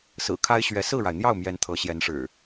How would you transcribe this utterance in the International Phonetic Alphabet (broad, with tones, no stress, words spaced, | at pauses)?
sɹ̩˨˩kʰa˦ɪ̯ɕɥɛ˨˦ sɹ̩˥˨ɻa˩ɪ̯n̪jɑ˥˨ʊ̯ mjɛ˨˦n t̪ʰɤ˨˦ɕjɛ˨˦nʂɻ̩˨˩